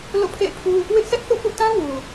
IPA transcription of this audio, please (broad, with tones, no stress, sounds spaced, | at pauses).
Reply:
l o̰˦˨ pʰ ḛ˦˨ ɪ̯ pʰ u˦ | w ɪ˦ ʔ sʰ ɛ˦ ʔ θ ṵ˦˨ p ṵ˦˨ t ã˦ w u˨